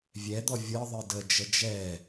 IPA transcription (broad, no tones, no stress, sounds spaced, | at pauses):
vʲ ɛ d̪ ɔ vʲ ɤ ðˤ ɨ d ə d͡ʒ ə d͡ʒ ɛ